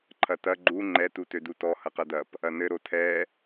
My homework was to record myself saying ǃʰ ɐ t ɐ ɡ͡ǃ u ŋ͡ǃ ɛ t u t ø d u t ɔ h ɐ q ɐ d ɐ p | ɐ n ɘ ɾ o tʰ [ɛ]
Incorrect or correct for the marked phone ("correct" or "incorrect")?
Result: correct